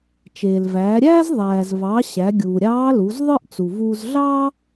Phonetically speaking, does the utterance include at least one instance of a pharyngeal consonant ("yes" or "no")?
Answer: no